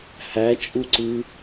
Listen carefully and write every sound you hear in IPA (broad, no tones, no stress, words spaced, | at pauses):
hæt͡ʃʼuǀɯ